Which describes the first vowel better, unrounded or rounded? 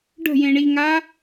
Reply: unrounded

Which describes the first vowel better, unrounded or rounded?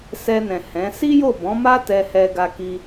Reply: unrounded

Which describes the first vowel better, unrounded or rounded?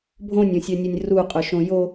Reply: rounded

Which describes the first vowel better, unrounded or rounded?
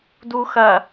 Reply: rounded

